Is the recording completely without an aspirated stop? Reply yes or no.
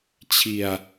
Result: no